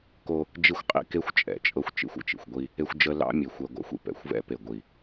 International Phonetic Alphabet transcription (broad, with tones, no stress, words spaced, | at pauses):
ko˦ | d͡ʒi˦˨xʷqʼḭ˦ ke˦xʷt͡ʃʼɛ̰˨t͡ʃʼɤ˦xʷ t͡ʃḭ˦xʷə̰˦t͡ʃḭ˨xʷ ɡʷi˦ | e˦xʷ d͡ʒə˦ lɑ̰˦mʲe˨ xʷɛ˦ɡʷɑ̰˦xʷḭ˨ pɛ̰˨xʷvɛ̰˦ pe˨ɡʷi˨